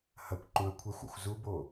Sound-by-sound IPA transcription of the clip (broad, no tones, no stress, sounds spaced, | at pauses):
h ɐ kʷ ǃ ũ ɐ̯ kʷʰ ɛ xʷ ɔ̰ xʷ z u b o